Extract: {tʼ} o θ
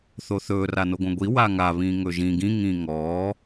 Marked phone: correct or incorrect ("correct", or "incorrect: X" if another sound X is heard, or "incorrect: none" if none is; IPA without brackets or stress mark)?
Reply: incorrect: θ